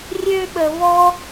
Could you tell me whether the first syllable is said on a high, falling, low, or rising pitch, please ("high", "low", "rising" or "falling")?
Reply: high